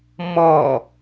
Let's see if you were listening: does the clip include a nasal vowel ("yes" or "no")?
no